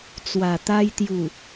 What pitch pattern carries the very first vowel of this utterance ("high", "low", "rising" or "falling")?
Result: low